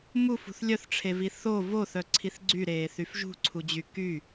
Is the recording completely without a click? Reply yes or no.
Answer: no